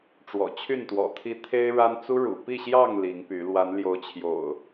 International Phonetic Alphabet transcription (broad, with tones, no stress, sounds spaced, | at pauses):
ʈ͡ʂ w ɔ̰˨˩ t͡ɕʰ y˥˨ n t̪ w ɔ̰˨˩ t̪ʰ i˦ t̪ʰ e˦ ɪ̯ ɻ a˦ n t͡s u˦ ɻ ṵ˨˩ p i˥˨ ɕ j ɑ˥˨ ŋ l i˨˦ ŋ p y˨˦ l w a˨˦ n l j o˨˦ ʊ̯ t͡ɕʰ j o̰˨˩ ʊ̯